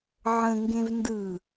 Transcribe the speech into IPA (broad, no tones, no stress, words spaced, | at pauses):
ʕə̃ŋɡẽv ndɯ